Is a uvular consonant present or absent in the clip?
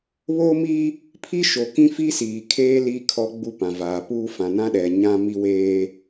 absent